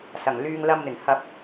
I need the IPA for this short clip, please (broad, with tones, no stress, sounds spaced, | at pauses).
s ɐ˨˩ ŋ l yː˧ ŋ l ɐ˧ m n̪ ɪ˨˩ ŋ h ɐ˧ p̚